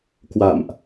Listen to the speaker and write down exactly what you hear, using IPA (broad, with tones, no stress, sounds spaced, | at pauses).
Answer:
k w a̰˧˨ m ʔ